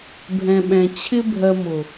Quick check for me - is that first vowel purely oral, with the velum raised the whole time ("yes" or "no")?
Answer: no